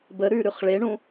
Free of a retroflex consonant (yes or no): no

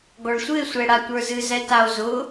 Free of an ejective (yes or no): yes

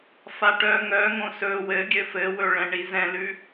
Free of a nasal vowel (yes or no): no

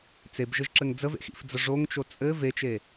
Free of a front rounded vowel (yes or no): yes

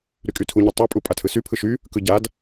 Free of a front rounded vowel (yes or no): no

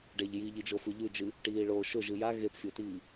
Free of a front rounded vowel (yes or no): yes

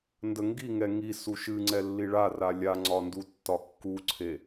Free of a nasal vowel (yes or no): yes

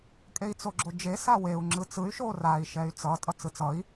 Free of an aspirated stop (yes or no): yes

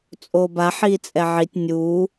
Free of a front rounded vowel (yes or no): yes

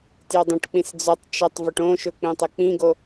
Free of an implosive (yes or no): yes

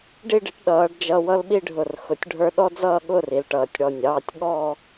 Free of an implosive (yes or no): no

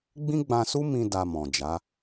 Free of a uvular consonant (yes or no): yes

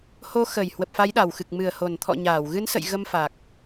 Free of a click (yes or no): yes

